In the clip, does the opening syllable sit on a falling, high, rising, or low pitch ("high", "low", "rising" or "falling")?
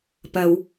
low